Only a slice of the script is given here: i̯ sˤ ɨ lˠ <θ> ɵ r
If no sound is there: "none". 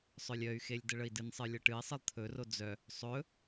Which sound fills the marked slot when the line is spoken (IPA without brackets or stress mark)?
t̪ʰ